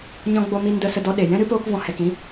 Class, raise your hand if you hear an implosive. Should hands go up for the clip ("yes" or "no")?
yes